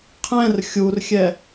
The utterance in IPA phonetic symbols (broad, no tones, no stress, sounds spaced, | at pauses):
qʰ ɛ̃ r xʲ u r xʲ ɛ